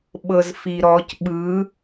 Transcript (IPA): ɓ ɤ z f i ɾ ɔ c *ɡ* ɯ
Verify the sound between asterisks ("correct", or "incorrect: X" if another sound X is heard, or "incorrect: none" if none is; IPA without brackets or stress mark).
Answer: incorrect: ɓ